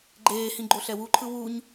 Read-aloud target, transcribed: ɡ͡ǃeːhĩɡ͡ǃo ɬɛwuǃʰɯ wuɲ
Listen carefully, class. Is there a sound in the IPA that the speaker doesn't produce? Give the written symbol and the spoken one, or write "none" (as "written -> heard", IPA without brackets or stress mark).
none